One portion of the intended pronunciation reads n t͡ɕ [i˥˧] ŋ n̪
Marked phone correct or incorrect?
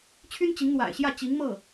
incorrect